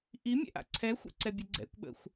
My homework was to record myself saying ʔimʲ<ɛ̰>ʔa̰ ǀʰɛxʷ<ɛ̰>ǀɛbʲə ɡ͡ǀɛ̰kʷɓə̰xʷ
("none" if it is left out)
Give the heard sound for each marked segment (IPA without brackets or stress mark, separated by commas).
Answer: ɛ̰, ɛ̰